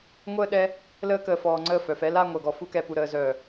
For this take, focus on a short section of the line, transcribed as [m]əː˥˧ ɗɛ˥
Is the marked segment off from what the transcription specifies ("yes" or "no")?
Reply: yes